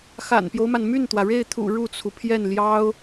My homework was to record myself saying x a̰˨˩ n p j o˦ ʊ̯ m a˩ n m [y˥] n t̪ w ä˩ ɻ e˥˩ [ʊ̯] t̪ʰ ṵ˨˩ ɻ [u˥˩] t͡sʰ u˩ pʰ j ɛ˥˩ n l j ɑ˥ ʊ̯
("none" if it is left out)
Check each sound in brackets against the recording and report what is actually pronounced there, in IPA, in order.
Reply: y˥˩, ɪ̯, u˥˩

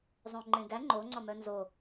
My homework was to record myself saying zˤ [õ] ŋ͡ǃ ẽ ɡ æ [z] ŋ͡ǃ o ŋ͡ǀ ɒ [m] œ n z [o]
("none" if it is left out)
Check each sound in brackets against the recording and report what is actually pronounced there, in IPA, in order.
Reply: õ, none, m, o

